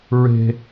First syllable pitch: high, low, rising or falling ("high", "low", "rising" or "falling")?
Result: high